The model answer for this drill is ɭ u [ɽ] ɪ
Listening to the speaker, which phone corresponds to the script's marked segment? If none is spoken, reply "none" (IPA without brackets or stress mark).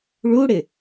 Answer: ɽ